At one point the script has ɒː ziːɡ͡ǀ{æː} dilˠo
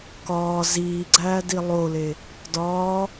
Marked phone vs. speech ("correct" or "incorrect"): correct